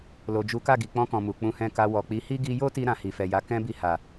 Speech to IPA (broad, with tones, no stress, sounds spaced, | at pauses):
l o˨ d͡ʒ u˨˦ k a˦˨ ɡ i˨ k͡p ɔ̃˧ k ɔ̃˨ m u˨ k͡p ũ˨˦ h ɛ̃˧ k a˧ w ɔ˨ k͡p i˨˦ h i˦ ɡ i˧ j o˦ t i˧ ɾ ã˧ h i˨ f ɛ˨ j a˨˦ k ɛ̃˦ b i˧ h a˨